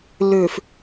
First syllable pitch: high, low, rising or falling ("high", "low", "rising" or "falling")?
low